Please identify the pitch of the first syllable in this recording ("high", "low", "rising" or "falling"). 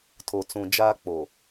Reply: low